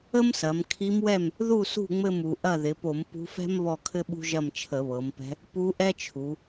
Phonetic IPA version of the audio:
ə˥msɐ˩˧mkʰi˧˥mwɛ˥˨m | ðu˥˨sṳ˥˨ ŋ͡mɘ˥˨mu˩˧ʔɐ˥˨ ðɪ˩˧po˧˩˧m pṳ˧˥fɛ̤˥m βɔ˥˨kʰɘ˥ɓṳ˥ʒɐ˥˨m t͡ʃʰə˧˩˧βɤ˩˧mpɛ̤˧˥ | pu˧˥ʔɛ˥t͡ʃʰu˩˧

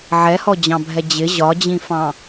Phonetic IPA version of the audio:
ʕɛhɔd͡ʑɑ̃bʱɛ d͡ʑɪ ʑɒd͡ʑĩfɑ̃

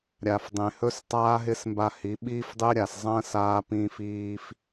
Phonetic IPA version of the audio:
ɾʲa˨fdˤẽ˨ hɵ˦s tˤaː˦ɦɪː˦smba˧ hi˨˦ ɓiː˦fdˤɪː˦ ɾʲa˨szˤɐ̃ː˦saː˧ pĩː˧fiː˧f

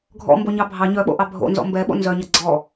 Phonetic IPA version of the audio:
ɡʱɔ̰mboɲɑ bʱɑ ɲœɓo̰ʔɑ bʱo̰nzɔ̰ mbɛɓo̰ nzœɲʌ ɡ͡ǀɔ

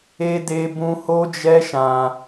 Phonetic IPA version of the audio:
e˦ de˦bũ˦ ho˦d͡ʒɛ˦ ʃã˧

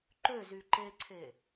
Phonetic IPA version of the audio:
ǃøzy ǃeǀʰe

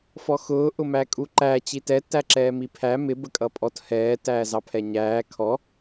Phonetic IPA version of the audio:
fɔxʊː ʔʊmækʼuǃæ t͡ɕitɛ tæǁɛːmipʰæ mɪ bəkʼʌpʼɔt hɛː tæːzɑpʰɛɲæː kʰɔ

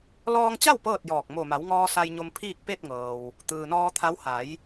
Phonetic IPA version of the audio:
lɔː˧ŋt͡ɕa˥˨w pɤː˥˨t̚jɔː˧˩k̚ mo˧˩ma˩˧wŋɔː˧ sa˧j ɲo˧mpʰiː˥˨k̚ pe˥˨t̚ŋɤː˩w | t̪ɯː˩nɔː˧t̪ʰa˧˥w ha˩˧j

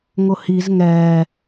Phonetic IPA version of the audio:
ŋʊhiz ŋɛː

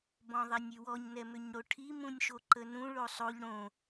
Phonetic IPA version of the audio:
bɔ̃ðˤɛnʲywɔɲ nɛmʏɲɽoʈʰi mũnʲʃoǃənũ ɭosˤoʎ ɽõ

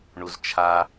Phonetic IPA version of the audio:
ɳuzt͡ʃʰa

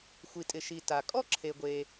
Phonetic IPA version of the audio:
xʷi˩tʼɪ˩ʃi˩ ta˩kʼɔ˥ ǁʰe˩ɡʷe˩

